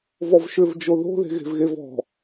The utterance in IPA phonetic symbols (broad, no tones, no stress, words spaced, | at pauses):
vɔvʃʏvd͡ʒo ðo̤ ðe̤ɣe̤vɣevɔ̤